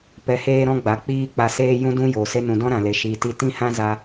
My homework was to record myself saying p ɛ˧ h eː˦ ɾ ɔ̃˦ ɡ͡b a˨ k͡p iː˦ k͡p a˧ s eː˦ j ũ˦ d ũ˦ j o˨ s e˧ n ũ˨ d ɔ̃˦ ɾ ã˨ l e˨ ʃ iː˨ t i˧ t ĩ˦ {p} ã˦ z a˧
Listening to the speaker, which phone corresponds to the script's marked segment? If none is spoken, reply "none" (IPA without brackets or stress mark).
h